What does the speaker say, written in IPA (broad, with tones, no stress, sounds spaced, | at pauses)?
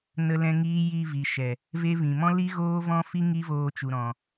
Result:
n ə˧ l ɛ̃˧ ŋ iː˦ j i˧ v i˨ ʃ ɛ˨ | v e˦ v ĩ˨ m ɔ̃˦ l i˦ ɣ oː˦ v ɔ̃˦ f i˦ ŋ i˦ v oː˧ t͡ʃ u˨ ɾ ɔ̃˨